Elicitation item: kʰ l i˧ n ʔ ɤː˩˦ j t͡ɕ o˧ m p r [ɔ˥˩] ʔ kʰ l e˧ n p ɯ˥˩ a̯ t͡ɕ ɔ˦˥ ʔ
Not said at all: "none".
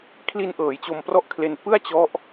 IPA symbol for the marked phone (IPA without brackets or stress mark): ɔ˥˩